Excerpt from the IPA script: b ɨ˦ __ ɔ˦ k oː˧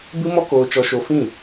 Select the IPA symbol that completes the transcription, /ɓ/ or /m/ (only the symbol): m